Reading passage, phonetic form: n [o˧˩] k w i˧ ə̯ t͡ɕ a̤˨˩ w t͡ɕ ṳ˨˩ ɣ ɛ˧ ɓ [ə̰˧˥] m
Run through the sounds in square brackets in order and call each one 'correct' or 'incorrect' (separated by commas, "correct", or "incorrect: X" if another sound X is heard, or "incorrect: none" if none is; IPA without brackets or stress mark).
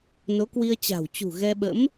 incorrect: o˨˦, correct